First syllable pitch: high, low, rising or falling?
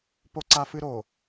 high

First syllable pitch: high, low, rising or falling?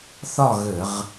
falling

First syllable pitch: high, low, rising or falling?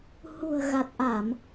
low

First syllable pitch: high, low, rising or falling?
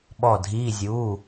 falling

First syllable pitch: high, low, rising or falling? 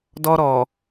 high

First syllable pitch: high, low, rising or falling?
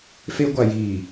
high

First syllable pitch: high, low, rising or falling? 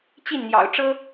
falling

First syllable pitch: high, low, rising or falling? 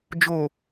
low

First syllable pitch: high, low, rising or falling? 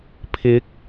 rising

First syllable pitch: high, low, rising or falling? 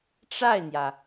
falling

